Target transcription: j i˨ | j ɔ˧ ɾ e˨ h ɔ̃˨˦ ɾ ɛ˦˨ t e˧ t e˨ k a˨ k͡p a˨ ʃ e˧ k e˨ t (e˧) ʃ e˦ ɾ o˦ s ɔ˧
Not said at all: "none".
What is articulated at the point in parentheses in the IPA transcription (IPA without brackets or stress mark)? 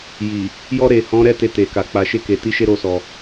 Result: i˧